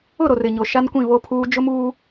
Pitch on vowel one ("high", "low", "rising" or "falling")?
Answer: falling